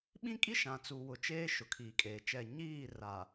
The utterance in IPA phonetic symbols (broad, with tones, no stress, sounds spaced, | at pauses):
ɓ ĩ˦ kʼ i˦ ʃ ã˨ t͡s u˨ w ʊ˨ t͡ʃ eː˦ ʃ ʊ˨ kʰ iː˨ kʼ eː˨ t͡ʃ ɛ˦˨ ɲ iː˦˨ r a˨